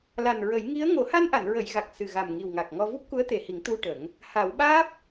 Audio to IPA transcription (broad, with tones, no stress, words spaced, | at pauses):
la˨˩nɹə˨˩˦jŋi˧˥ə̯ ŋo˨˩˦ha˧nʔa˨˩˨n ɹə˨˩˨jɣa˨˩k̚ sɨ˨˩ɣa˨˩mŋi˨˩w ŋa˨˩k̚ŋɔ˧ vu˦˥p̚ku˧˥ə̯t̪e˨˩hi˨˩˦ŋ t̪u˧ ʈə˨˩˦ŋ | ha˨˩˦wɓaː˦˥p̚